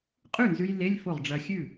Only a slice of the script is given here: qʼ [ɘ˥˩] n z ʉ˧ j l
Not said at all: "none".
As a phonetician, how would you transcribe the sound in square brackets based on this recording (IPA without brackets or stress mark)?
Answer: ʉ˥˩